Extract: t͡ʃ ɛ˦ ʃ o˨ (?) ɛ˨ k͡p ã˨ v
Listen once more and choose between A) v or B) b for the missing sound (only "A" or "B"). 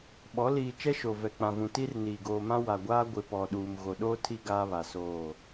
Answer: A